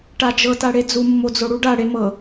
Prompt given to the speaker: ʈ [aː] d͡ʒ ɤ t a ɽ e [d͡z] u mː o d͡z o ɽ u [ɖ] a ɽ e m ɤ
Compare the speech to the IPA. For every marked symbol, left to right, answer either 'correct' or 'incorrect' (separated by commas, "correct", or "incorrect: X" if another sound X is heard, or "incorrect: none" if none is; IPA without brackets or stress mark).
incorrect: a, correct, correct